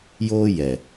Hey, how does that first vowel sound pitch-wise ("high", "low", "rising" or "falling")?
high